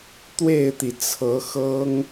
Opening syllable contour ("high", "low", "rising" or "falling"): falling